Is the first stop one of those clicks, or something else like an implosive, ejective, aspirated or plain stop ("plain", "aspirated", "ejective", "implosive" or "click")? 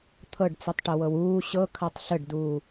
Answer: aspirated